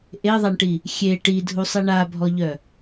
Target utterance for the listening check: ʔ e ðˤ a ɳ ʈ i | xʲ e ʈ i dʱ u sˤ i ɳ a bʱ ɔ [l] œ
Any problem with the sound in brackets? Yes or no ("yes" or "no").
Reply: yes